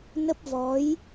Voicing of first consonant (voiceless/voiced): voiced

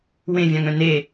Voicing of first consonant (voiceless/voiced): voiced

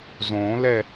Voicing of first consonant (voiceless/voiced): voiced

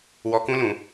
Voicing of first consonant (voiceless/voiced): voiced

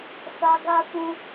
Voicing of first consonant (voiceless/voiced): voiceless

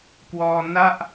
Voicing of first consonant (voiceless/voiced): voiceless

